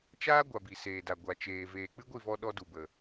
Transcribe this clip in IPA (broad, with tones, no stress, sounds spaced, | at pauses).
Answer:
t͡ʃ aː˦ ɡʷ a˨ b i˨ s eː˨ d a˨ ɡʷ a˨ t͡ʃ eː˨ v eː˨ k͡p ɨ˦ ɡʷ i˦˨ v ɔ˧ ɗ ɔ˧ d u˨ b ə˨